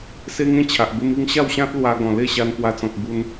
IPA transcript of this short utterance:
s e˦ ŋ ẽ˦ t͡ɕʰ a˨ ʔ b e˧ m i˧ ŋ ɕ a˥˧ w ɕ ã˦ t̚ l w a˧ ɡ ɔ̃˨˩ l e˥˧ ɕ a˧ n p w a˧ t͡s ɔ̃˨ k̚ b u˧ n

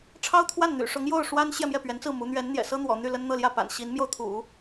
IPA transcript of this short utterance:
ʈ͡ʂʰ ɑ˥ ʊ̯ t̪ʰ w a˥˩ n n̪ y̰˨˩ ʂ ʊ˧˥ ŋ j o˥˩ ʊ̯ ʂ w a˥ n ɕ j ɛ˥˧ m j ɛ˥˩ p ɥ ɛ˧˥ n t͡s ɹ̩˥˩ m u˧˥ n̪ ɥ ɛ˧˥ n n̪ j ɛ̰˨˩ s ɤ˥ n̪ w ɔ̰˨˩ n̪ y˥˩ l ə˥ n n̪ ɤ˥˧ l j ä˥˩ p a̰˨˩ n ɕ i˧˥ n m j o˧ ʊ̯ t̪ʰ ṵ˨˩˦

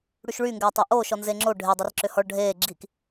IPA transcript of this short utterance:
ɽ y ʃ ɭ y ŋ ɡ ɛː tˤ ʏ ʔ oː ʃ ɔ n z e ŋ͡ǁ o ɖʱ e dˤ ɛ r ǁ ʏ h ɔ ɭ ɖʱ eː ɡ͡ǁ i k

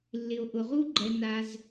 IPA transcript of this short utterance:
lː ɪ˩ o̯ ʔ ʊ˩ ʁ u˥ ɡ͡ǃ ɛ˩ n a˩ z

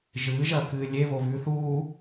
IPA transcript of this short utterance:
ʒ ɨː ʒ ɐː k ɨː lʲ e β o β ʉː θ uː

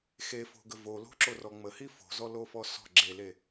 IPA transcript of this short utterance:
x e f o̤ ɡ ə v o l o̤ ǁ o r ɔ ŋ͡m ə h i f o̤ z ɔ l o f ɔ s ɔ̤ ɡ͡ǁ e l e

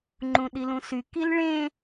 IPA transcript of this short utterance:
ŋ͡ǃ ũ ɗ i l ũ s y k i l ɭ ẽ

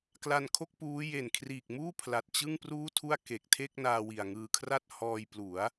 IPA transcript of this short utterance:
k l a˧ n kʰ o˥˩ k̚ p uː˦˥ j e˨˩ n kʰ r iː˨˩ k̚ m uː˥˩ pʰ l a˨˩ t̚ t͡ɕ ɯ˥˩ ŋ p r uː˥˩ tʰ u˥˩ a̯ k e˨˩ k̚ tʰ e˥˩ k̚ n aː˧ w i˨˩ a̯ ŋ ɯː˧ kʰ r a˥˩ t̚ h ɔː˧ j p l u˩˦ a̯

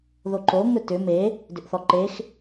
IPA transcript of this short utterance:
ð o ǃ o ŋ ɵ t ʏ m e | d ʏ ʔ θ ɔ ǃ e x

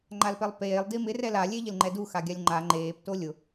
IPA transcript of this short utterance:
ŋ͡ǃ a l p ɛ lˠ p eː lˠ d i m ɪ r ɛ l a lʲ e ʎ ɪ l ŋ͡ǃ ɛ d u x a ɡʲ a lʲ ŋ͡ǃ a ŋ͡ǃ eː p t o lʲ ʊ

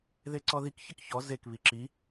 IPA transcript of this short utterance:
ð e ǀ ɔ ð i k ç ɪ k ç ɔ z e k β i ǁ i

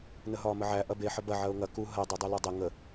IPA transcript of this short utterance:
n ə ɦ ɒː m ə ʕ æ ʔ ɐ b e ħ ə b ɐ ʕ ɐ ʊ̯ ŋ ɐ k u ɦ ɐ dˤ u dˤ e l ɒ dˤ ə ŋ ə

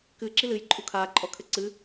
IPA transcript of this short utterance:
k ɨ ǁ i l ɨ j ǃʼ u kʰ aː ǃʼ ɔ kʰ ɘ ǀ ɨ

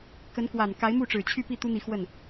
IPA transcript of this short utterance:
k ə˧˥ n k w a˨˩ n k a˧˥ ɪ̯ m u˥˩ ʈ͡ʂ ɻ̩˨˩ t͡ɕʰ y˥˧ p i˥˩ t̪ u˥ n̪ i˧˥ x w ə˥˩ n

